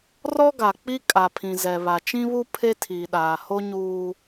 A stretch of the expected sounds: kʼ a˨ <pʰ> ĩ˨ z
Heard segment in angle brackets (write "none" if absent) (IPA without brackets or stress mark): pʰ